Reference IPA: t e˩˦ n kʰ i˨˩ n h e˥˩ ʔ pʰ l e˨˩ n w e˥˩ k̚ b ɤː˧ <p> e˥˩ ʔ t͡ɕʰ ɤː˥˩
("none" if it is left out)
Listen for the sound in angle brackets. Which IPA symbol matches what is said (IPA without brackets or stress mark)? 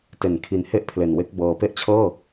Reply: p